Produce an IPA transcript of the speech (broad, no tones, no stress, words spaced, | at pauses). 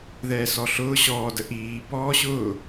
ðɛːsɔɬʊː ɕɔː dəʔiː bɔːɕʊ